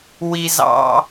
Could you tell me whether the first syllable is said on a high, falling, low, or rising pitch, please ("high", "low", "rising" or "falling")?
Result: high